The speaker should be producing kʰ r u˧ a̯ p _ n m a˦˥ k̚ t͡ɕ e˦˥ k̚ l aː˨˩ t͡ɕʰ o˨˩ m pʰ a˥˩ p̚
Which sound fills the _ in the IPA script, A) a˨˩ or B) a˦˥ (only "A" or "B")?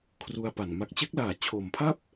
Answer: A